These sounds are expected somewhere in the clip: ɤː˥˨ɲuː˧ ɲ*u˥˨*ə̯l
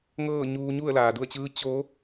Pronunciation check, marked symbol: correct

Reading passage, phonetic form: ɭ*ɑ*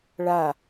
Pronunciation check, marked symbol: incorrect: a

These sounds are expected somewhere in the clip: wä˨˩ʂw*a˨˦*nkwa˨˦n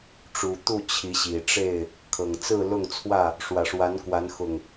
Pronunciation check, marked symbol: correct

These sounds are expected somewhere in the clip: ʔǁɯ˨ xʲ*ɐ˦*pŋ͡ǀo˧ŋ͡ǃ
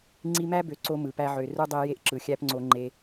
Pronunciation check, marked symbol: incorrect: æ˦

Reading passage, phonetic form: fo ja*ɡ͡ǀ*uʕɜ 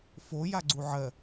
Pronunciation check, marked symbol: correct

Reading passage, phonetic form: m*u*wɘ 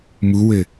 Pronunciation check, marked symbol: correct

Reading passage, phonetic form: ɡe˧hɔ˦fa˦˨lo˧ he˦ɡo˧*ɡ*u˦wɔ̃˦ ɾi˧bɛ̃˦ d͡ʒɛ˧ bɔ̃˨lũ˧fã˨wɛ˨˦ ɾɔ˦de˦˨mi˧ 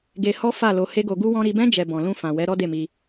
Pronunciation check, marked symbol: correct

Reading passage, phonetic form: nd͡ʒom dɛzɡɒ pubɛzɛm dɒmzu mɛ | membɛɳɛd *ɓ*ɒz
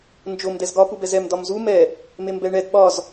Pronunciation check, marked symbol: correct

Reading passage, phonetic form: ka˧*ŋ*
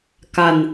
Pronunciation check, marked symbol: incorrect: n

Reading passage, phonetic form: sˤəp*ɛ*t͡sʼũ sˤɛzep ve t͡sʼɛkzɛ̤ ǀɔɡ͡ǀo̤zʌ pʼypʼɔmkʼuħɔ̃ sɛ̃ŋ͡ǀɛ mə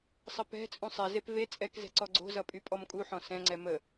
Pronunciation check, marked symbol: incorrect: ɛ̤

